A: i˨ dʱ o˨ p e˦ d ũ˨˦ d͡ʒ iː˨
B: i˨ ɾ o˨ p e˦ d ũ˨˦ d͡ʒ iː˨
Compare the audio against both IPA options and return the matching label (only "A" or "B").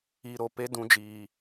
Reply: B